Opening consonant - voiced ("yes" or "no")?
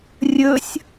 yes